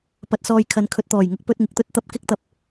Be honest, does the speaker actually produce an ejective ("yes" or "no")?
no